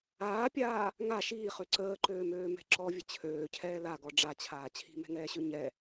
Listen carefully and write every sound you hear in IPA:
aːpʲaː | ŋa ʃiːχø ǀəːǃøːmøːmɛ̤ ǁɔvʲə t͡ɕʰøːcʰɛː laɡɔ ɖ͡ʐat͡ɕʰaː t͡ɕʰi̤mɛ̤ŋɛːɕø ɲɛ

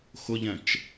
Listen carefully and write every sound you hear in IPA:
xʊʎɛ̃t͡ʃ

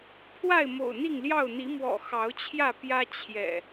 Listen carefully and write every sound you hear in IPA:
pʰwa˥˨ɪ̯mo̰˨˩ʊ̯n̪i˥˨ŋljɑ˥˨ʊ̯ n̪i˨˦mwɔ̰˨˩ xɑ˨˦ʊ̯t͡ɕʰjä˥˨ pjä˦ t͡ɕʰjɛ̰˨˩

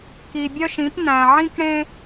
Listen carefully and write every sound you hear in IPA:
ki˧bʲœ˥ʃĩ˧˥p næ̃˧ʕĩ˥kɽẽ˥

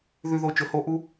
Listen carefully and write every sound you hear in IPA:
ðʉ˨ðo˨ t͡ʃɵ˨ho˧ʔu˦

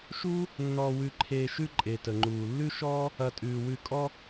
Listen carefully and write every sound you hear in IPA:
ʃuː˥ | nːɔː˨wʉ˨ǃʰeː˨ ʃʉ˦ǃʼe˩tə˩ŋ͡ǃuː˩ lːʉ˥ʃɔː˥ | ɐ˨tʼʉː˩ wʉ˨kʼɔ˥

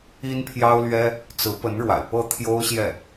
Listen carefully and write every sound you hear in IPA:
i˥npʰjɑ˥ʊ̯lɥɛ˥ | t͡sɹ̩˧˥pə˧˥n ɻwa̰˨˩ɪ̯ pɤ˥˩ t̪ʰjo˥ʊ̯ɕjɛ˥˩

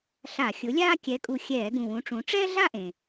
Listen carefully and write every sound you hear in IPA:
ɬa˧˩˧xʲʊ˨˥lʲaː˥ kʲɛ˨˥kʼu˧˩xʲɛː˧˩˧ ɡũ˧˩wũ˨˥ʈ͡ʂũ˨˥ ʈ͡ʂɛː˥ɮa˥˧ʔẽ˩

